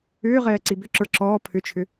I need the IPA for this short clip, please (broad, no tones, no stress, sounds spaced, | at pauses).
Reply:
ʏː ʁ ɛː ǀ i b ʏ ǁ ə˞ ǁ ɔː pʰ ʏ t͡ʃʰ ʏ